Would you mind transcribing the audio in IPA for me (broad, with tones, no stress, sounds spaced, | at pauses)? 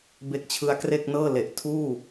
b e˦˥ k̚ t͡ɕʰ ɯ˦˥ a̯ k r e˥˩ k̚ n ɤː˥˩ l e˨˩ ʔ tʰ uː˥˩